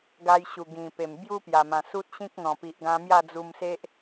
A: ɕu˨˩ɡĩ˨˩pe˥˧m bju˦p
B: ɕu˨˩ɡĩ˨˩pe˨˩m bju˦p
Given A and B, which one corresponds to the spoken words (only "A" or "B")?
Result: B